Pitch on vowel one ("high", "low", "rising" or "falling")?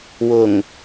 low